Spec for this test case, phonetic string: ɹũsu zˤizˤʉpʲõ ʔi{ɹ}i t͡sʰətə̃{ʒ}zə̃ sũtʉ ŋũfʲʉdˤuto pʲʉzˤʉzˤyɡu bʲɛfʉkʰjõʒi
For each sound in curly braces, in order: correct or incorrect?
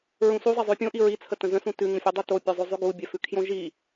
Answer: correct, incorrect: none

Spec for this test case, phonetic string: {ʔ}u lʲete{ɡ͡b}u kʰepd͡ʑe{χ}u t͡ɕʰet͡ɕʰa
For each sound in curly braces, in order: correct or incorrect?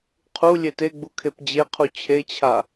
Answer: incorrect: qʰ, correct, incorrect: qʰ

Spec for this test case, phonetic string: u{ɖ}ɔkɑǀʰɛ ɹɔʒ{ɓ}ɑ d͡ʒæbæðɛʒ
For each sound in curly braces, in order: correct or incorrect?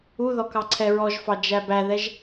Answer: incorrect: ð, incorrect: f

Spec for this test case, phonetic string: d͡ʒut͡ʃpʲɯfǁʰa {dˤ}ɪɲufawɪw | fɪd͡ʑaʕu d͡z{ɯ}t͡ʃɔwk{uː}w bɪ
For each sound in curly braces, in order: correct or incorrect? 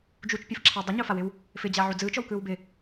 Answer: correct, incorrect: ɯː, incorrect: ɯː

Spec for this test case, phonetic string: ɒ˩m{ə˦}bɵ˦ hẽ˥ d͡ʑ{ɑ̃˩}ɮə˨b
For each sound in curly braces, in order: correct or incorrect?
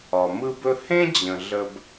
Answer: incorrect: ɯ˦, incorrect: ə̃˩

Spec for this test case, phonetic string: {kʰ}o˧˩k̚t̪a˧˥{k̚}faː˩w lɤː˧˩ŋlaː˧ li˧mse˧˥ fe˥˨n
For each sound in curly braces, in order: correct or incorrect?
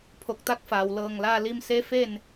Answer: incorrect: pʰ, correct

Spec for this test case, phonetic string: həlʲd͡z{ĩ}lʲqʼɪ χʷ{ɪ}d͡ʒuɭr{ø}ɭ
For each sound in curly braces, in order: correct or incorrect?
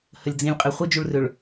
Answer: correct, incorrect: i, correct

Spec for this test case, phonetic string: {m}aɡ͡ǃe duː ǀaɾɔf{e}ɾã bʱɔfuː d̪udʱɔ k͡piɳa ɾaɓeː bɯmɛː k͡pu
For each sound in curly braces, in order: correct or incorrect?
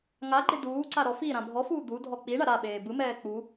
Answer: incorrect: ŋ, incorrect: i

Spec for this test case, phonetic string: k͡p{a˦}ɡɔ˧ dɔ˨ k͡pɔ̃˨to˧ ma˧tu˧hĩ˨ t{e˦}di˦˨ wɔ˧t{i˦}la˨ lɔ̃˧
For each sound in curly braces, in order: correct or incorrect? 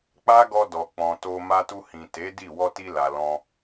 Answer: correct, incorrect: e˨˦, incorrect: i˧

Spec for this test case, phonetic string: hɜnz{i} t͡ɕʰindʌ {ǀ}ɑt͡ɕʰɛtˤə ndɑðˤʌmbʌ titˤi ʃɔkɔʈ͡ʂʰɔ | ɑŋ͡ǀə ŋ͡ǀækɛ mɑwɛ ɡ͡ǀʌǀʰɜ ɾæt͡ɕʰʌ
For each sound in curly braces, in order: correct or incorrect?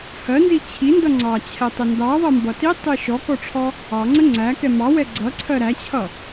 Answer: correct, incorrect: ŋ͡ǀ

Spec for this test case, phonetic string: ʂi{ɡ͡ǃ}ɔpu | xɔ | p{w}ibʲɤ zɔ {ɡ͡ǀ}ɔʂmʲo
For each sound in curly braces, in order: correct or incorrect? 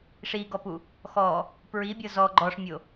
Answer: incorrect: ɡ, incorrect: ɹ, incorrect: ɡ͡ǃ

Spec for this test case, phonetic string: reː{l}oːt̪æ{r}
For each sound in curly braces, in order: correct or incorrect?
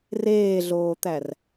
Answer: incorrect: ɮ, correct

